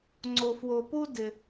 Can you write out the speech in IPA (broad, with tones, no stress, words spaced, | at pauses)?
ŋ͡ǀo˧fwo˧pu˥ dɪ˧